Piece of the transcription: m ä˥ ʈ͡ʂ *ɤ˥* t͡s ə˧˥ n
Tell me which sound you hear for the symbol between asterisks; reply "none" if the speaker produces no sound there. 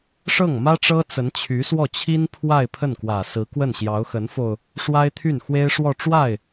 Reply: ɤ˥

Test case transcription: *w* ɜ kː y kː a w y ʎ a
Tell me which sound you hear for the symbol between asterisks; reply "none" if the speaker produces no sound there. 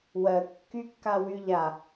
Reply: w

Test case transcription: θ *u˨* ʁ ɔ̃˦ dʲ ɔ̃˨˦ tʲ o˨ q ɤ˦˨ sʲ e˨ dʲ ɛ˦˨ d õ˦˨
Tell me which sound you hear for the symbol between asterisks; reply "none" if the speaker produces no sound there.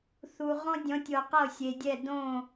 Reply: u˨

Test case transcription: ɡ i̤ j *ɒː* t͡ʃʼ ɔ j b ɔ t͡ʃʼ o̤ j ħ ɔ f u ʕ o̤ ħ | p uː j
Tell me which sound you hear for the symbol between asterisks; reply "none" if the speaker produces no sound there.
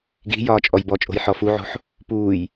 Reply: ɒː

